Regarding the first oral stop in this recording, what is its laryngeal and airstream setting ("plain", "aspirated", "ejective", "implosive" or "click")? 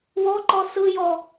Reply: click